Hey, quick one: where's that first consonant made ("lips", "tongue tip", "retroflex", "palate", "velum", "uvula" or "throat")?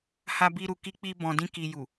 throat